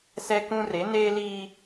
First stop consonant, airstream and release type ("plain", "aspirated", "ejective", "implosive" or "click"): plain